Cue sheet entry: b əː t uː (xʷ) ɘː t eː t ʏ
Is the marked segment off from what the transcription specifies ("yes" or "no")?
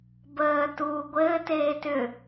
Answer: yes